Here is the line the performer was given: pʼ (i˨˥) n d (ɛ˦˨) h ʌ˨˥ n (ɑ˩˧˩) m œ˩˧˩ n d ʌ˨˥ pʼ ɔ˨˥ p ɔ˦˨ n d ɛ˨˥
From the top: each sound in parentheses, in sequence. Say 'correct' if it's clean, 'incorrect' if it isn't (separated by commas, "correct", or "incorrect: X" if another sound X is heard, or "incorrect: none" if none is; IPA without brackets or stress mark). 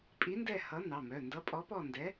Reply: correct, correct, correct